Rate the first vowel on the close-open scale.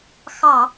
open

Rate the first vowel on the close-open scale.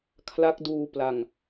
open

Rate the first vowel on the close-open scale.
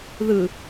close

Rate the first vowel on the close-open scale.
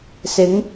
close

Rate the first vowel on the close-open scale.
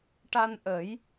open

